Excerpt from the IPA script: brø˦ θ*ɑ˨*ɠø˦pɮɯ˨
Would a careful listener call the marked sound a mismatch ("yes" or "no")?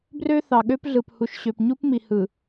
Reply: no